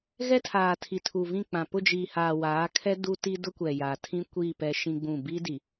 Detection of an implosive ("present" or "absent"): absent